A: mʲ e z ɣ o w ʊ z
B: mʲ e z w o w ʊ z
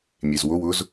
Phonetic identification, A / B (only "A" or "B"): B